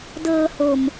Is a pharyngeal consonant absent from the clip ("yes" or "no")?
yes